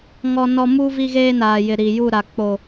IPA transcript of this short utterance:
ŋ ɔ˦ n ɔ˦ m u˦ v i˦ ɣ eː˦ n aː˨ j ɪ˨ ɾ i˨ j u˦˨ ɾ a˨ k͡p o˨

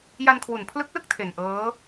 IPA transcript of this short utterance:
j a˧ n kʰ w u˨˩ n pʰ l ɯ˦˥ k̚ l ɯ˥˩ k̚ tʰ e˨˩ n ʔ ɤː˦˥

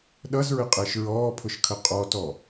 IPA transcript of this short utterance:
ɗ ʌ z ɹ ɪ qʼ ɪː ʃ ɹ ɔː pʰ ʊ ʃ kʰ ə qʼ ɔ t ɔ

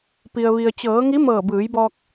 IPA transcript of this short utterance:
p i˩ ə̯ ʋ i˩ ə̯ t͡ɕ ɤː˩˧ ŋ i˧˥ m ɤː˧˩ b ɯː˩˧ j b ɔː˧ k̚

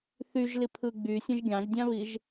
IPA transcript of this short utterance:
θ y ʒ l i pʰ ɯ ɡ͡b y sʲ æ̃ ʒ ɡʲ ɑ̃ ʒ dʲ ɑ̃ β i ʒ

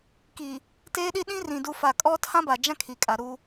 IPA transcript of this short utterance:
k iː˨ | t eː˦ ɗ i˦ ɗ ĩ˦ r ĩ˨ d u˨ f a˨ kʼ ɔ˦ tʰ ã˦ b a˨ d͡ʒ ã˦ kʰ i˨ kʼ a˨ ɾ uː˦

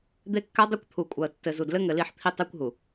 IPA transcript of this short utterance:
d̪ e˦ kː a˦ dˤ u˦ kʷ t̪ʰ u˨ kʷʼ a˨ ə̯ tː ɘ˨ z u˨ d l ɘ˦ ŋ ɘ˨ l i˦˨ ħ t̪ʰ i˦ tˤ e˦ kʷ ɦ u˨

